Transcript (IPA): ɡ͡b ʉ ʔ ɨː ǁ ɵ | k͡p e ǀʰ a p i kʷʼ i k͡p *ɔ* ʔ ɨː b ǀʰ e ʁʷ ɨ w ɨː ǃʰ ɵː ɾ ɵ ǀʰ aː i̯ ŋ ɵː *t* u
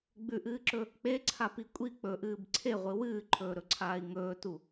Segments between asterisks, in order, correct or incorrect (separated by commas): incorrect, correct